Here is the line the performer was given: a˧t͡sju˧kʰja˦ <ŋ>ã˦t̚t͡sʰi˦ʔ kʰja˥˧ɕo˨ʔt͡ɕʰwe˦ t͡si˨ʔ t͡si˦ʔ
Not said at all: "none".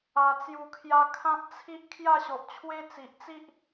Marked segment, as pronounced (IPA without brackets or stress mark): kʰ